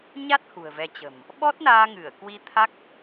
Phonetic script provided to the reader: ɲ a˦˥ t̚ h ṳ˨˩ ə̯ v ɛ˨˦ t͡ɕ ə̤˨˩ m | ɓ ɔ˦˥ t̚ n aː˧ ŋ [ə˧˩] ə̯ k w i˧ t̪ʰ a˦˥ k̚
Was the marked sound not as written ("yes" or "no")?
yes